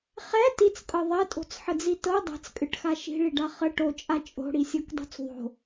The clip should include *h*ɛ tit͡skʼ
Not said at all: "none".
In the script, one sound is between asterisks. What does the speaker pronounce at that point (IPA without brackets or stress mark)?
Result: χ